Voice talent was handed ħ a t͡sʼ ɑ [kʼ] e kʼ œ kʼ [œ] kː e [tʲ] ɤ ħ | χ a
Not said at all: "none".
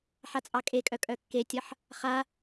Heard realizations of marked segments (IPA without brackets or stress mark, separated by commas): kʼ, œ, tʲ